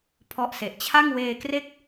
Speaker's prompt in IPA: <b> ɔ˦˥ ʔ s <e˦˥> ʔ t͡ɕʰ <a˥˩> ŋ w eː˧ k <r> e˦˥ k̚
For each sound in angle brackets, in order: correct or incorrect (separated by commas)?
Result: incorrect, incorrect, correct, correct